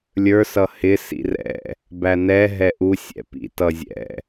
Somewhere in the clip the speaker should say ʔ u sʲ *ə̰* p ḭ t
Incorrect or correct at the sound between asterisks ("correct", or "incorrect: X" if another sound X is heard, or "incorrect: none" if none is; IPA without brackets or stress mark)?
incorrect: ɛ̰